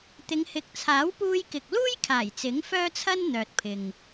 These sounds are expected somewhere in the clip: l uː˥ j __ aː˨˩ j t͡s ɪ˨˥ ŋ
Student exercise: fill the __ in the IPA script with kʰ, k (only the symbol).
kʰ